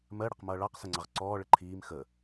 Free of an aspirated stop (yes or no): no